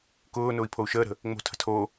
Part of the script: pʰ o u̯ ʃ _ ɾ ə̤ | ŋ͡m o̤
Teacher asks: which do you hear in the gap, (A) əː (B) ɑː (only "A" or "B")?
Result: A